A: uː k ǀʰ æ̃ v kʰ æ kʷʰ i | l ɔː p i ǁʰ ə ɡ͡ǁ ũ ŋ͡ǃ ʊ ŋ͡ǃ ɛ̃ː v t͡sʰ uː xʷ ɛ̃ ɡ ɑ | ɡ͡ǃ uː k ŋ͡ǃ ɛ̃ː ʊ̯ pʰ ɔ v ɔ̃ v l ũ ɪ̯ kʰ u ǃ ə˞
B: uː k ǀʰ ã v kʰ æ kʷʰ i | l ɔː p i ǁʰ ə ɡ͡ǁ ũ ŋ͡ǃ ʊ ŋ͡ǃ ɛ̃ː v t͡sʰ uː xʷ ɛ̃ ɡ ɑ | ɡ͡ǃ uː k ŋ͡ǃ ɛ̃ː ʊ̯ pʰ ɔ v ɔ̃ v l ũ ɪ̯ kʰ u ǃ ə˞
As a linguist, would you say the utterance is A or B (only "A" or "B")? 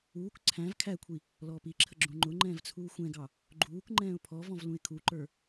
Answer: A